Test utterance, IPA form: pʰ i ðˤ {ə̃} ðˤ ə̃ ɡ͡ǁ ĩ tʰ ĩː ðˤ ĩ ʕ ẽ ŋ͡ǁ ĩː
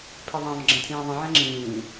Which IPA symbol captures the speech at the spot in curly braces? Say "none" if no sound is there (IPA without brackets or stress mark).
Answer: ã